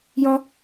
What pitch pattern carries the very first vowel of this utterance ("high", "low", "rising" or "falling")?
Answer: high